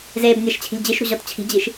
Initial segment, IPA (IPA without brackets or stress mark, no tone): z